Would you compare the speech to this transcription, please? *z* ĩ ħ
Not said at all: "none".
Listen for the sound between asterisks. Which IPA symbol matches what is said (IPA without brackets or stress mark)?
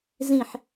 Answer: z